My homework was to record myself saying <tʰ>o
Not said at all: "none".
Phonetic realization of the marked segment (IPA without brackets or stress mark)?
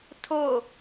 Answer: tʰ